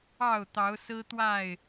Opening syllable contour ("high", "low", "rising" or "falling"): falling